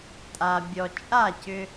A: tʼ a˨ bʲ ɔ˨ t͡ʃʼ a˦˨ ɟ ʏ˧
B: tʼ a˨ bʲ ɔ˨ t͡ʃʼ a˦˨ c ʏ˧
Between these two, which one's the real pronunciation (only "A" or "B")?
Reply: B